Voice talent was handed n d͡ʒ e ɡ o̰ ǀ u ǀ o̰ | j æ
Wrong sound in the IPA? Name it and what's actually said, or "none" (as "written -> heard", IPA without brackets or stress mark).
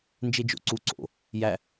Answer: ɡ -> d͡ʒ